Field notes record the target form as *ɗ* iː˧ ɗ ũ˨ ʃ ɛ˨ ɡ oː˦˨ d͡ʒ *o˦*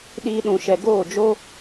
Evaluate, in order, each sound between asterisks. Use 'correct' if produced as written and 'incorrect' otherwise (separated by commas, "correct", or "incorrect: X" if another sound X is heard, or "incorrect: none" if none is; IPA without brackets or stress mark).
correct, correct